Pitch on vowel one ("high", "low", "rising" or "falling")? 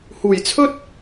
low